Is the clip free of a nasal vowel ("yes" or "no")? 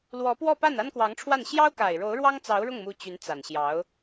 yes